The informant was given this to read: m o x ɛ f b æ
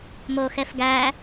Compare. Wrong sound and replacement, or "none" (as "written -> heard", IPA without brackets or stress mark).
b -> ɡ